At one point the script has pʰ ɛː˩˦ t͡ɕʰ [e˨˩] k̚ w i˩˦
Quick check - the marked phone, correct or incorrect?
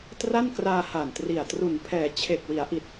correct